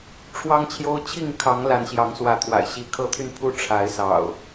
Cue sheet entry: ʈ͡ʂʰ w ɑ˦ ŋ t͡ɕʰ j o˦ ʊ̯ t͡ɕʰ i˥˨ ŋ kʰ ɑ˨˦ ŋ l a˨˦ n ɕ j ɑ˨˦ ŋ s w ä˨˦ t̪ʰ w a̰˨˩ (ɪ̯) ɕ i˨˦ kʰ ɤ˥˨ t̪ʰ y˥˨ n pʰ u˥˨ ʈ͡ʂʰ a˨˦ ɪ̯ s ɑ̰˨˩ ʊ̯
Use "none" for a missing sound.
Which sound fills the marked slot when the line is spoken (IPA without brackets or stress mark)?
ɪ̯